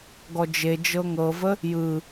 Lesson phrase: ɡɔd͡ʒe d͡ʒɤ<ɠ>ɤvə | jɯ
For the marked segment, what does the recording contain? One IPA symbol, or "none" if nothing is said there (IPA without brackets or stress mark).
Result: ŋ